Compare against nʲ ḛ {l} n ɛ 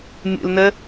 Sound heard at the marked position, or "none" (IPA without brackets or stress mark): l